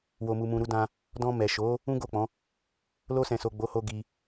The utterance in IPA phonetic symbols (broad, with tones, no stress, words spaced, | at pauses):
wo˨mu˨mũ˨ ɾu˧dã˧ | dɔ̃˧ mɛ˨ʃo˨˦ | ũ˦ɡo˦˨k͡pɔ̃˨˦ | lo˧sɛ̃˨so˨ ɡ͡bo˨˦ho˧ ɡi˧